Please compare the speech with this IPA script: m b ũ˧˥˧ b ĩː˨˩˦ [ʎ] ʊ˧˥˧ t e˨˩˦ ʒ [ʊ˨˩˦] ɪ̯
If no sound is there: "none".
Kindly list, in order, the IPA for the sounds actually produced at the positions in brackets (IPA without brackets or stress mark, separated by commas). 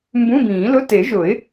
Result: l, ʊ˨˩˦